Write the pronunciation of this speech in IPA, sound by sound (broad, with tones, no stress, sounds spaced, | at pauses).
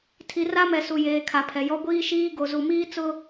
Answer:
tʰ i˨ r a˦ m ɛ˨ s u˨ j eː˨ kʰ a˨ pʰ ɛ˨ j ɔ˦ ɡʷ iː˦ ʃ iː˦ ɡ o˨ z u˨ m iː˦ t͡s ʊ˦